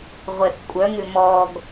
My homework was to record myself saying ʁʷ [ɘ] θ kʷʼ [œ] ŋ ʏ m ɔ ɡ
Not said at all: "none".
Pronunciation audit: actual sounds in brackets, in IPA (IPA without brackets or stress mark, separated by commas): ɛ, œ